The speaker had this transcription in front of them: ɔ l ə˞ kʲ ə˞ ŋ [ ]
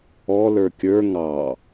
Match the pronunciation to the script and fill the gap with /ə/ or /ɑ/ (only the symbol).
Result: ɑ